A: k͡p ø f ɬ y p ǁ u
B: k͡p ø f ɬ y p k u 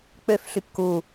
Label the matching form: B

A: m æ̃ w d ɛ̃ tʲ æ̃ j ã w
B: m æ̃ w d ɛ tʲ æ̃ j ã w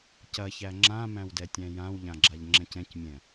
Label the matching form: B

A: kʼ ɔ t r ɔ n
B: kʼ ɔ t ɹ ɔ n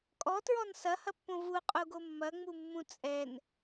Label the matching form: B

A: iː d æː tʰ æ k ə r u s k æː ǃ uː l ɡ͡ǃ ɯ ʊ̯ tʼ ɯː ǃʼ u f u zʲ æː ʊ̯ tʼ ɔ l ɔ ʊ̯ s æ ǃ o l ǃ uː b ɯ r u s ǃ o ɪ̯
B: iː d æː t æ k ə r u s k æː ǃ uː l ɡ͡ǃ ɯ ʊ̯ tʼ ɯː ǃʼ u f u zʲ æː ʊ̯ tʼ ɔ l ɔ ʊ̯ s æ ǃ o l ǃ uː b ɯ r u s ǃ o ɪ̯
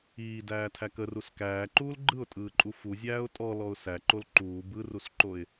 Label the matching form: A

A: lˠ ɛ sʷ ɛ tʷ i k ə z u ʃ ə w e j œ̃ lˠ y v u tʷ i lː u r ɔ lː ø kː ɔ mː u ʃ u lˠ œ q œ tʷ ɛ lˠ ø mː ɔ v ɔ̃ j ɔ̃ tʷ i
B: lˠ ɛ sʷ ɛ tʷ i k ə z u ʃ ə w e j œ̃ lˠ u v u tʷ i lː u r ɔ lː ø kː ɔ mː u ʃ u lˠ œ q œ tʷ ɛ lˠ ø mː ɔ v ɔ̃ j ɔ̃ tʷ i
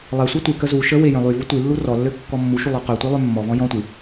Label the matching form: A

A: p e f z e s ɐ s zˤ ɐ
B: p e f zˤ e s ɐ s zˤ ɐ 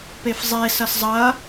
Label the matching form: B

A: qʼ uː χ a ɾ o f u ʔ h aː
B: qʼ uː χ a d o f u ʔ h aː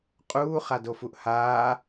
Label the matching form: B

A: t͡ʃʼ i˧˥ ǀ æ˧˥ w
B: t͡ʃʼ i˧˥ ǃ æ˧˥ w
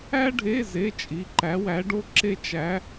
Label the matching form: B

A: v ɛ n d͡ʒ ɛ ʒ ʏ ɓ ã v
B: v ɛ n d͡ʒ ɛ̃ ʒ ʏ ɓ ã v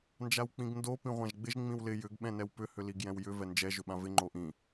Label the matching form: A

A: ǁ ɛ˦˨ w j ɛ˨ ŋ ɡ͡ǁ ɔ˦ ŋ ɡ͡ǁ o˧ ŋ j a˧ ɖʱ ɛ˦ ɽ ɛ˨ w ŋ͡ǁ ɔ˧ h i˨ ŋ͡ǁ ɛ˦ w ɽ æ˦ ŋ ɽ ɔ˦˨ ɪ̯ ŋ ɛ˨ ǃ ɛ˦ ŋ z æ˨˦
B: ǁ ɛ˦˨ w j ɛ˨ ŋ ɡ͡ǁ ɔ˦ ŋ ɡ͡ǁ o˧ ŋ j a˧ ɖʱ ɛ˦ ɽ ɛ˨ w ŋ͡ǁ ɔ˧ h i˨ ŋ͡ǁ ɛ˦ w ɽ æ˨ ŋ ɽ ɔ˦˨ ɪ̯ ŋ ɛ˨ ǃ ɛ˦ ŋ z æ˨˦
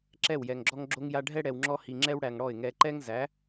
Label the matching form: B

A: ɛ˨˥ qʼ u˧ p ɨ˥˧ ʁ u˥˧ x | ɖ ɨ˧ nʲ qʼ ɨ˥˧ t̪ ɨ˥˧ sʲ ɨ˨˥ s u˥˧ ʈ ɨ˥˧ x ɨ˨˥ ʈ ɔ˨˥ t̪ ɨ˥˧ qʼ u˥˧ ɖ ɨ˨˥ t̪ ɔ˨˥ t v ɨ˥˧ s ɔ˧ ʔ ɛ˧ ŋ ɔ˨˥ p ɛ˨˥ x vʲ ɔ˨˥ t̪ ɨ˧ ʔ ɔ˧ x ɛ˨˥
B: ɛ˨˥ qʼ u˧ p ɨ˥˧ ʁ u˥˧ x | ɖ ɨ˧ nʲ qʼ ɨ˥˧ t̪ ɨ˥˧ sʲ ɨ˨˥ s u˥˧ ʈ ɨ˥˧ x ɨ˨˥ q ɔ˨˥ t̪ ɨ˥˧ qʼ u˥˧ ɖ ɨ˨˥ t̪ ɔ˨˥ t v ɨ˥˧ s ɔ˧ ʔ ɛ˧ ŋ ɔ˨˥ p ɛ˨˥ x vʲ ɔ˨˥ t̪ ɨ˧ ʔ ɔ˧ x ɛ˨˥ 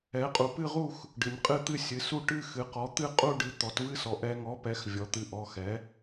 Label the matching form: B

